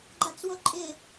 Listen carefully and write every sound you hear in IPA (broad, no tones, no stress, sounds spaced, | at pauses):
ɡ͡ǃ a t͡s w o ǃʼ ɪ